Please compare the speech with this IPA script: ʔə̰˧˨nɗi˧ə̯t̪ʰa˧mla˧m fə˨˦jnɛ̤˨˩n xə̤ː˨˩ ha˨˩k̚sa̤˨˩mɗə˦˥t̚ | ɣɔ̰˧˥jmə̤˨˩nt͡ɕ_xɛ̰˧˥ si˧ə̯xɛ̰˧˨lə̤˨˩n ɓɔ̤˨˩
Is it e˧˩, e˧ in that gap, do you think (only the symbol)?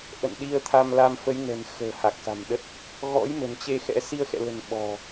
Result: e˧